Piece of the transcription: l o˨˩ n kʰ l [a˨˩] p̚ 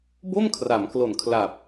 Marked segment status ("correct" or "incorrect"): correct